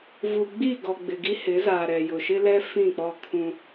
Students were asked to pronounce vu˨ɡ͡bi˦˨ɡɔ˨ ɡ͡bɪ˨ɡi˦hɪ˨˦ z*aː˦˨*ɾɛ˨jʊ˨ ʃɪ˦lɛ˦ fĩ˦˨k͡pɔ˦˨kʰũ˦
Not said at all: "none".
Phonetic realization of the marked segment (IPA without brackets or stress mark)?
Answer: aː˨